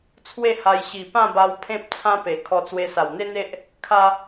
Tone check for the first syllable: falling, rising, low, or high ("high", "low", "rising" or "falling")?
falling